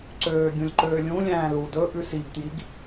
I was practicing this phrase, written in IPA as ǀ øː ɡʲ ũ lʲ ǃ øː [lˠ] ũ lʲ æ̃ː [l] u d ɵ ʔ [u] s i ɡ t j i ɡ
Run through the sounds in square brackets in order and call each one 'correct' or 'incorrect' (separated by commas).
incorrect, correct, incorrect